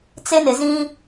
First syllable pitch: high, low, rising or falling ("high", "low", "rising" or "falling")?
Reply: high